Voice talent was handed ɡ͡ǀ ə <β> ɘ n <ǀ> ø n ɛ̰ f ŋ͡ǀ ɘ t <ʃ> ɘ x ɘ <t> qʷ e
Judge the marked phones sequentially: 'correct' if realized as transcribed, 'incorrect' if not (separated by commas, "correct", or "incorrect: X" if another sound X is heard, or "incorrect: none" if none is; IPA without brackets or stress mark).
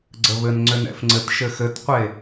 correct, incorrect: ŋ͡ǀ, correct, correct